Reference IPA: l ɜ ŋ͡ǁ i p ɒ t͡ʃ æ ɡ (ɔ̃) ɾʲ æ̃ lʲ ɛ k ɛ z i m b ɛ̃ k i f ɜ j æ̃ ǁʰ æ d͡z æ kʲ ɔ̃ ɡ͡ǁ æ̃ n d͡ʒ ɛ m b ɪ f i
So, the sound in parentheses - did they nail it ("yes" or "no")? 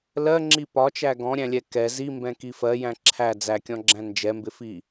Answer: yes